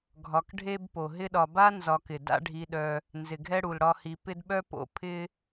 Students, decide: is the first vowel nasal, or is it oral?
oral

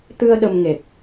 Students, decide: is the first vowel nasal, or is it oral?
oral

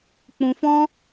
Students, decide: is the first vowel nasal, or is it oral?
nasal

